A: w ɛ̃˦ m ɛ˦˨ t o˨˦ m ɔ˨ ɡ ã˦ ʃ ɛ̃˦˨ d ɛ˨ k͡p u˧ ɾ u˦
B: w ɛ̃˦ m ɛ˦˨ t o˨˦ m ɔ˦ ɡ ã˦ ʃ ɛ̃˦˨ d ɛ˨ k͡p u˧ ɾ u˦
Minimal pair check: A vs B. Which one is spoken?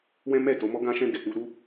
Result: B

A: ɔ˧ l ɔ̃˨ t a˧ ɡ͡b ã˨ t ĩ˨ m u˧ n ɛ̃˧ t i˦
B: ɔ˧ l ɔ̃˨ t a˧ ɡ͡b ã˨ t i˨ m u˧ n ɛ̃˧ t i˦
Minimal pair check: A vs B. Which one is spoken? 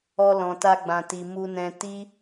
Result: B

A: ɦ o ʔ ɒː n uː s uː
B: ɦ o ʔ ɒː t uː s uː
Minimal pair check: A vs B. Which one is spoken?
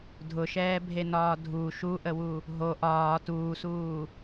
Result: B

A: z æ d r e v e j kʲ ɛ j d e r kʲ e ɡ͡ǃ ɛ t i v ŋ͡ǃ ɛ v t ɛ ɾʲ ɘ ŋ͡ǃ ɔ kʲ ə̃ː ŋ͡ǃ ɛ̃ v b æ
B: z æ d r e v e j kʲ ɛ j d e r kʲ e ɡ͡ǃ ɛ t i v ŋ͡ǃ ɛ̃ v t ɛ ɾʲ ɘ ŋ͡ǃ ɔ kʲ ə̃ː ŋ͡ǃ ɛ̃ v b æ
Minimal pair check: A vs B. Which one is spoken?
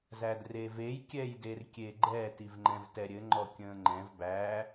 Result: B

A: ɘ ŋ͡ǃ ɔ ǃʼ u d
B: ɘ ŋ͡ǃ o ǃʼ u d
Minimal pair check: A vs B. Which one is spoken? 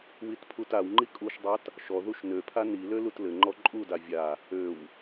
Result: A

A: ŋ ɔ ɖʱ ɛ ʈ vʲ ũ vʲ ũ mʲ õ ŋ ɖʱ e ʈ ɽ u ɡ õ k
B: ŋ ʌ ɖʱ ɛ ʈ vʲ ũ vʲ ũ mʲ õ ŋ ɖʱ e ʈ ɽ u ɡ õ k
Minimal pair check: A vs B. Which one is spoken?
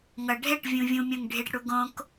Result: B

